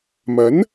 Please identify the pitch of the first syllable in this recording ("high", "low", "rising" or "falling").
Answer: rising